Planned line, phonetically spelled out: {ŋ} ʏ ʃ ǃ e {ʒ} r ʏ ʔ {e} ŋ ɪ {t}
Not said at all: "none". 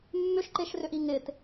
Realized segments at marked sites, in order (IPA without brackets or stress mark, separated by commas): mː, ʃ, i, t